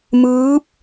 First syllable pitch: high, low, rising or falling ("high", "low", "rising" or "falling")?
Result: rising